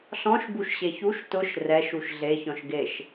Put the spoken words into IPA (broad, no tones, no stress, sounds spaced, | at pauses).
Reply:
ɬ ɔ̃ ʃ b u ʃ ɕ e ç u ʃ t ʊ ʃ r ɛ ʃ u ʃ ɮ e ç ɔ̃ ʃ ɡ e ʃ